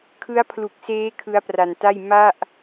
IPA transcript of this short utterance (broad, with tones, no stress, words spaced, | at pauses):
kʰɯ˦˥a̯pʰlu˨˩k̚seː˦˥ kʰɯ˦˥a̯pra˧nta˥˩j ma˥˩ʔ